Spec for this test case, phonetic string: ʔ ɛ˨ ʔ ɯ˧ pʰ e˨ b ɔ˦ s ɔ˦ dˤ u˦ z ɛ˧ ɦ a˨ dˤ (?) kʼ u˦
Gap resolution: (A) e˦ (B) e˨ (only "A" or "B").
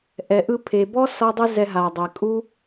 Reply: B